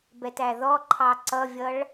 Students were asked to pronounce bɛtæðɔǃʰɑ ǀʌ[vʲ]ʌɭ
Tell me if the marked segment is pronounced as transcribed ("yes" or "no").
yes